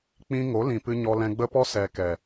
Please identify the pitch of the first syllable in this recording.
high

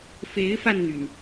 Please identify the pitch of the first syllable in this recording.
rising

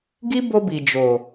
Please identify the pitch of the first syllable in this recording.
high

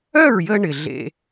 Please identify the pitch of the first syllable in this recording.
falling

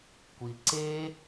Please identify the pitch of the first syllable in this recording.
low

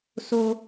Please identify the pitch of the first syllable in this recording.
low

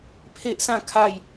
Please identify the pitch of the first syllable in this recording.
high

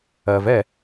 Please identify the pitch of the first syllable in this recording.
low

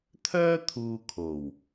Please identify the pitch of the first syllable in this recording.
high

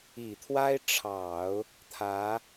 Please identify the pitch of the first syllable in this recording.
low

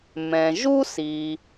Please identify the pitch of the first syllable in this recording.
low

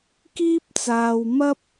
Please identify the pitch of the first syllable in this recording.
high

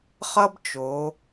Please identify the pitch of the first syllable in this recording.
high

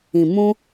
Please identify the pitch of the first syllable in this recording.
low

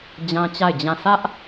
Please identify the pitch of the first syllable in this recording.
high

